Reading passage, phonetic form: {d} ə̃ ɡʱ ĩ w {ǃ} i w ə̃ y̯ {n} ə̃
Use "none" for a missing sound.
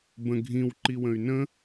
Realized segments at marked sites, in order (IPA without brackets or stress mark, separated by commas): b, ǃ, n